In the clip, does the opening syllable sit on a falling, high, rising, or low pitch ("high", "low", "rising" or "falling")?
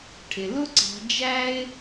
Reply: low